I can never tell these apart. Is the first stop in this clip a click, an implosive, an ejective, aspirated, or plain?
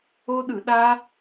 implosive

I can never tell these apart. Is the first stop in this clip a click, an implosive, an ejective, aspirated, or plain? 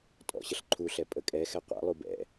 ejective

